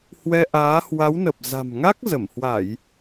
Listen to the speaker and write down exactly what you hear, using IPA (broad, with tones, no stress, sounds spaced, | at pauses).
h w ɛ˧ ʔ aː˨˦ h w a˨˦ w n ə˨˩ p̚ z a̤˨˩ m ŋ a˦˥ k̚ z ə˧˩ m h w a˧˩˨ j